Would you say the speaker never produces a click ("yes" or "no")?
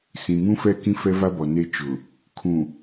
yes